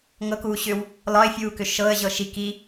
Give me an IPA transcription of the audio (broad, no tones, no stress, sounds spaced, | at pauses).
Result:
ŋ ɤ k uː ɕ ʏ w | l ɒ ɪ̯ fʲ uː k ʏ ʃ ɤ ə̯ ʑ ɤ ʃ i k i